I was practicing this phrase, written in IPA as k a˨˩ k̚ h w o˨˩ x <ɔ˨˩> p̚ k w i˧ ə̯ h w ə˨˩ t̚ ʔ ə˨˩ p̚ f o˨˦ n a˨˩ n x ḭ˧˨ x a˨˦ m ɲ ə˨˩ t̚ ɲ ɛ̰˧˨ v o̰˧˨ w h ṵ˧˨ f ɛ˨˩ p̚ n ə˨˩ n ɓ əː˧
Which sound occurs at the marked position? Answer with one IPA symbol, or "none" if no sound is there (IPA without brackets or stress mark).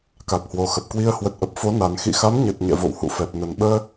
ə˨˩